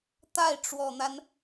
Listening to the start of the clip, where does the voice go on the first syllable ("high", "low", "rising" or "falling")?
falling